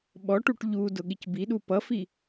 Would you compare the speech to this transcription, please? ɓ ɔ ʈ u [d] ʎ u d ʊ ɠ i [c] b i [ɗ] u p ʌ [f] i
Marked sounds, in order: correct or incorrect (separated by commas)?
incorrect, correct, correct, correct